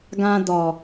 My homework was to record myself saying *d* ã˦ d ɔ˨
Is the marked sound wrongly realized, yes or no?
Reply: yes